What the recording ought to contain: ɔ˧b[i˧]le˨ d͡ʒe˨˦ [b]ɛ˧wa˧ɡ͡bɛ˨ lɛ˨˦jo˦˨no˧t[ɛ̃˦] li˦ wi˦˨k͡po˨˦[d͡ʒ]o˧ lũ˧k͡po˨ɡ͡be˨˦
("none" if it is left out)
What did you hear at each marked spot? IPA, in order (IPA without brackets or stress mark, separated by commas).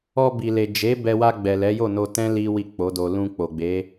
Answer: i˨, b, ɛ̃˦, d